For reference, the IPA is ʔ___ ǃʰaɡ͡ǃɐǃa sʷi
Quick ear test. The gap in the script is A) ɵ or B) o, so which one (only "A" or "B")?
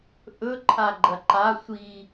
A